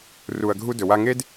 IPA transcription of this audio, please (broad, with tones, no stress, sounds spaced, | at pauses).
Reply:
r u˨ ɐ̯ ɡʱ u˦ d ɵ˨ w a˦ ŋ e˦ d